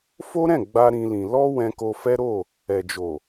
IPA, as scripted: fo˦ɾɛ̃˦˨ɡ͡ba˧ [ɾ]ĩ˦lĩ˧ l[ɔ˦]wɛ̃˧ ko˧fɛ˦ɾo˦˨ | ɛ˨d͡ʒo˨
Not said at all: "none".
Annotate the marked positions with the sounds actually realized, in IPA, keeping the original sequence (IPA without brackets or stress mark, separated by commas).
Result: ɾ, ɔ˦